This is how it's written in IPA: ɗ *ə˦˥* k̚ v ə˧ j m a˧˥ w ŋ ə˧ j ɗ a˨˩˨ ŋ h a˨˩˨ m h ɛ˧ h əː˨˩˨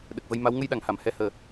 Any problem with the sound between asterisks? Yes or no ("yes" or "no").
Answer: yes